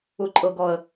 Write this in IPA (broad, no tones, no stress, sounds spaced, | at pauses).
u ǃʼ ɤ ɡ ɔ ə̯